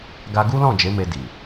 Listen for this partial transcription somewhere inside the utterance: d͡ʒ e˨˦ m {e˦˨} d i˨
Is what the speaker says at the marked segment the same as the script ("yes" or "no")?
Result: no